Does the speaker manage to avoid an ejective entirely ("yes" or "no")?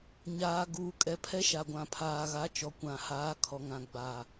no